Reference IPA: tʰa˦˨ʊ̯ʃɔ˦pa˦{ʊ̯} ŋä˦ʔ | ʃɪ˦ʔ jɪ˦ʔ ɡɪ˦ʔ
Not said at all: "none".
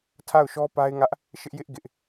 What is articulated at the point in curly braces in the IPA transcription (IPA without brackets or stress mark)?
ɪ̯